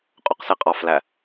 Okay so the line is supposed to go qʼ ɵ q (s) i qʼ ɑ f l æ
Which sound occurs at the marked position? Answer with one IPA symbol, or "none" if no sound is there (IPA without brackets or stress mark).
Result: s